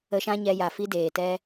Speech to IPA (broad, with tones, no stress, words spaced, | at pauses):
ə˧ʃã˦ɲɛ˧ ja˨fi˦deː˨tɛ˦